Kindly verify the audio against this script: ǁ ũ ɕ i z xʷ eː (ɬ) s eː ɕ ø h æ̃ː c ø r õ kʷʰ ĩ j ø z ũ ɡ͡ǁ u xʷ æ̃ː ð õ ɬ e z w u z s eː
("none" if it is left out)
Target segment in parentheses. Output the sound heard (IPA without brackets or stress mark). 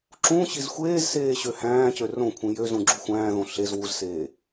z